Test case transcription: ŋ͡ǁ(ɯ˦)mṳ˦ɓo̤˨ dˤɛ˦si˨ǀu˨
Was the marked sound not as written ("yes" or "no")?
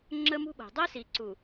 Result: yes